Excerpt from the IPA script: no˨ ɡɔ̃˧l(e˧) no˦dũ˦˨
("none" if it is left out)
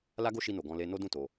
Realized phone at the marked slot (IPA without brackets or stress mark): e˧